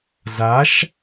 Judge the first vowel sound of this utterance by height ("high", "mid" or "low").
low